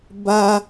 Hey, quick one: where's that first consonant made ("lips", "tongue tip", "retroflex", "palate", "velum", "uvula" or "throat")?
lips